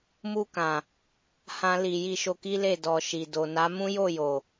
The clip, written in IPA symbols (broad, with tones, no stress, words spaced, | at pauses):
mu˧kã˨ | hã˦li˧ ji˧ʃo˧ki˦le˦˨ dɔ˨ʃi˨ do˨na˨˦mũ˦ jo˦˨jo˨